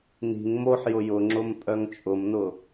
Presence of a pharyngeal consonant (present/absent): present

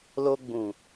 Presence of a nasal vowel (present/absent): present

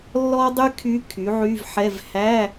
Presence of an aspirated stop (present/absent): present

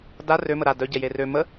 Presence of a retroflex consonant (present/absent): absent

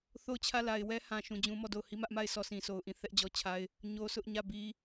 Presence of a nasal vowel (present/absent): present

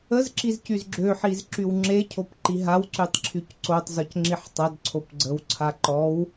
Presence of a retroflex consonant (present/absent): absent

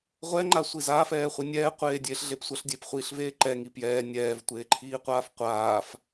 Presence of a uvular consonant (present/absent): present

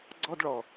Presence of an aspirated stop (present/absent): absent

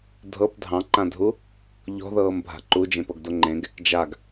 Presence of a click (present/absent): present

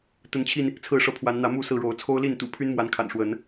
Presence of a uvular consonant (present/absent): absent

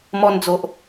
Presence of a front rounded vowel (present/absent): absent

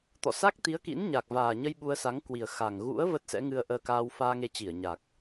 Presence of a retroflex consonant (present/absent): absent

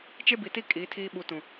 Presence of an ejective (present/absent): present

